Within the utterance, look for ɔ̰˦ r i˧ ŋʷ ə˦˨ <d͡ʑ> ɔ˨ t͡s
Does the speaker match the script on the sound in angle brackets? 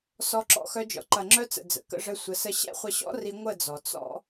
no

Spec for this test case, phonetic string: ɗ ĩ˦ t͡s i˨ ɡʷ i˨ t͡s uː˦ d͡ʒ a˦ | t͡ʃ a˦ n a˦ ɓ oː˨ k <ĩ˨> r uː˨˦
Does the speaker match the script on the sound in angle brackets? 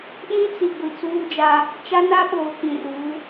yes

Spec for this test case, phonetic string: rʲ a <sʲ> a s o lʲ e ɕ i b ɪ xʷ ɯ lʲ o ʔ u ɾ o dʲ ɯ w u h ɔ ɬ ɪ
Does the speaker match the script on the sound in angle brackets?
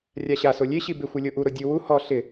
no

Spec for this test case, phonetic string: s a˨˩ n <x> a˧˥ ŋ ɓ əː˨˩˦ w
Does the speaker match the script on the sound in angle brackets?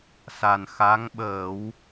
yes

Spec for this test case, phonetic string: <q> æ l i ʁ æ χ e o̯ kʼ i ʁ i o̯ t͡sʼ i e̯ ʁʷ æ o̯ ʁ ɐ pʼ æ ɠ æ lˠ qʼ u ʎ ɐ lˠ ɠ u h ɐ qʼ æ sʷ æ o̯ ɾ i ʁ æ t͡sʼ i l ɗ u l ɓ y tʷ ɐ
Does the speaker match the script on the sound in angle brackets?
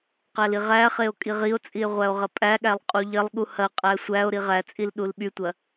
yes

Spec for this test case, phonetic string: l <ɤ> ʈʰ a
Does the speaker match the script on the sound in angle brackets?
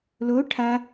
no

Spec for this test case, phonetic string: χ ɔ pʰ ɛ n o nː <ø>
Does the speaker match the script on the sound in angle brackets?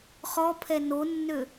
yes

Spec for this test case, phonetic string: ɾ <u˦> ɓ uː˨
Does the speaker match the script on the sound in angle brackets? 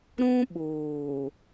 no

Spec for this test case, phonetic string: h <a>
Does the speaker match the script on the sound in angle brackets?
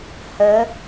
no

